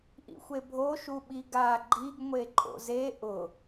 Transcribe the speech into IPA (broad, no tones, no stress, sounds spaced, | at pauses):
ʔ ḭ xʷ e bʱ o ʃ u ɓ i ɡ a ɡ͡ǃ i ɡ ŋʷ e ǃʼ o̰ z e ʔ ʊ